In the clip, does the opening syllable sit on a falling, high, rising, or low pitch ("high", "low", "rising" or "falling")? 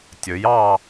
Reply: rising